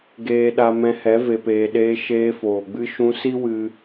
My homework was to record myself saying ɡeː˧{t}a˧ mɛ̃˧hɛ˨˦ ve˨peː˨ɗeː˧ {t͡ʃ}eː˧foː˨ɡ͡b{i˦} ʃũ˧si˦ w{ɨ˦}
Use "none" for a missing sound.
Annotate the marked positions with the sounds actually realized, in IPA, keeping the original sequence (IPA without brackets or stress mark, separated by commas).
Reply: ɗ, ʃ, ɨ˦, ɨ˧